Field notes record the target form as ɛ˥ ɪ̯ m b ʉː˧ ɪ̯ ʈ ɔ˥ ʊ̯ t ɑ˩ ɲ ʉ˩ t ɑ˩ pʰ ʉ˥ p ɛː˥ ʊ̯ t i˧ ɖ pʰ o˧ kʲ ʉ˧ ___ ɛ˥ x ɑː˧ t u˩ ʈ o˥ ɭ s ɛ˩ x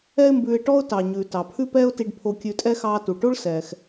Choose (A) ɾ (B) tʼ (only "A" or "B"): B